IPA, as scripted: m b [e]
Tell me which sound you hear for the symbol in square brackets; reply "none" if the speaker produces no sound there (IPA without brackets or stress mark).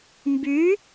y